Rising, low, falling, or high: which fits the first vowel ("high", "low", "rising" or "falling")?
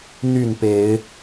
falling